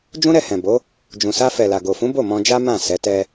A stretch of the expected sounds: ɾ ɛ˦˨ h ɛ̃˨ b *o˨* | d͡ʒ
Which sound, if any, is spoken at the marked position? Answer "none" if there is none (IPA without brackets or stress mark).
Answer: o˨˦